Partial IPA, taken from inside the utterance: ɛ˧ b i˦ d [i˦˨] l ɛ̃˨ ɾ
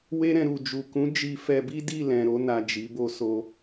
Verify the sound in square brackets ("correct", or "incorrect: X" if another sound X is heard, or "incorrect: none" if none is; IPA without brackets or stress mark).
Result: correct